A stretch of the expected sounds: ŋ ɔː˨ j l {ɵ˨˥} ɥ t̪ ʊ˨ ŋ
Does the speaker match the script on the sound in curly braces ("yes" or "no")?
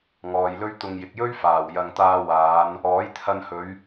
no